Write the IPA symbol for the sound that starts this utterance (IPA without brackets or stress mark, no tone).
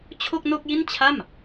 t͡ɕʰ